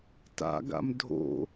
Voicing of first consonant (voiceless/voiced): voiceless